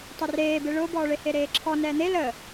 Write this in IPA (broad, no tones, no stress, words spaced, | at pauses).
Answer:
tˤɛreːbe ɭʊːbɔːɭe heɾeːǁʰɔ nɛːn̪e lə